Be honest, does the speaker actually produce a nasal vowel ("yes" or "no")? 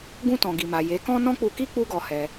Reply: yes